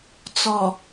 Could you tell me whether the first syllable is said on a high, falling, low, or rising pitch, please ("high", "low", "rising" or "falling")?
low